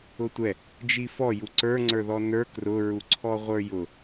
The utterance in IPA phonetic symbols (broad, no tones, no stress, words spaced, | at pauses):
ʊtʷɛ | d͡ʒifɔ juǀə˞ ŋ͡ǀə˞ðɔnə˞ krʊ ɹuǀʰɔʁʷə˞jʊ